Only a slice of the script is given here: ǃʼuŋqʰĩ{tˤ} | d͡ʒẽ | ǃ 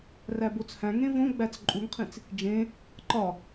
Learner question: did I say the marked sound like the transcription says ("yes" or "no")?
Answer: no